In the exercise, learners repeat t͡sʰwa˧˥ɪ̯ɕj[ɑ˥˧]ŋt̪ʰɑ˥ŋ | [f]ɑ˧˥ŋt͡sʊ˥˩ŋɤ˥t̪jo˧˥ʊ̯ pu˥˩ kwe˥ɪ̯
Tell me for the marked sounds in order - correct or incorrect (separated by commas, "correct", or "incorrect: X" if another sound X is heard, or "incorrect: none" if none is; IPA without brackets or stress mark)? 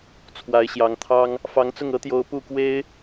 incorrect: ɑ˧˥, correct